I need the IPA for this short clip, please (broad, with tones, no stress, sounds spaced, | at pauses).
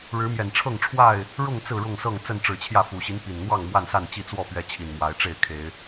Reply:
ɻ ɻ̩˨˦ m j ɛ˨˩ n ʈ͡ʂʰ ɤ˥˨ ŋ ʈ͡ʂʰ w a˥˨ ɪ̯ | ɻ ʊ˥˨ ŋ t͡s ɹ̩˥˨ ɻ ʊ˥˨ ŋ s ɤ˥˨ ŋ t͡s ə˥˨ n ʈ͡ʂ ɻ̩˨˩ t͡ɕʰ j ä˥˨ f u˨˩ ɕ i˦ n p i˨˩ n n̪ w ɑ˥˨ ŋ m w a˥˨ n s a˥˨ n t͡ɕ i˥˨ t͡s w ɔ˥˨ p ɥ ɛ˨˦ t͡ɕʰ i˨˩ n m w a˨˦ ɪ̯ ʈ͡ʂ e˥˨ ɪ̯ kʰ e˨˦ ɪ̯